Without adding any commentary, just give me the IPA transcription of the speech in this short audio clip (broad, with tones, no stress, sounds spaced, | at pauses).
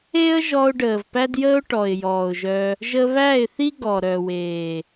e˦ ə̯ ʒ ɔ˧ ʊ̯ ɖ əː˨ v p æ˦ d j əː˦ ʊ̯ ʈ ɔ˨ ɪ̯ j ɔː˨ ʊ̯ ʒ œ˧ | ʒ ə˧ β æ˦˨ ɪ̯ θ i˦ ɡ ɔ˨ ɾ œ˨ w eː˨